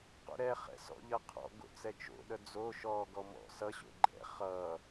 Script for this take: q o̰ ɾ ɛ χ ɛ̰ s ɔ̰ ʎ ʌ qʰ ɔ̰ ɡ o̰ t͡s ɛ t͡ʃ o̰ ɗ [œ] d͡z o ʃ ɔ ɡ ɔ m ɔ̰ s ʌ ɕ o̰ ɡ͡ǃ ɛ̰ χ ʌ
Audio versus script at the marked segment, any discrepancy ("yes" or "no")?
no